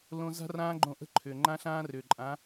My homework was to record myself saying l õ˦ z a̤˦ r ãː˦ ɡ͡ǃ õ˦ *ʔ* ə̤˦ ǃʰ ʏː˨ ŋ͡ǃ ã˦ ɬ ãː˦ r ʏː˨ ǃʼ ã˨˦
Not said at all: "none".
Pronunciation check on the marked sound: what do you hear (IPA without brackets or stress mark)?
ʔ